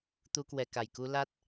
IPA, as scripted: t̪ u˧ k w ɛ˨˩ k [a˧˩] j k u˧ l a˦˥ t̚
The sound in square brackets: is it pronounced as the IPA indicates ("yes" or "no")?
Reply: yes